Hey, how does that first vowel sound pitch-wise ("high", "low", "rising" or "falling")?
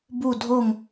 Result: falling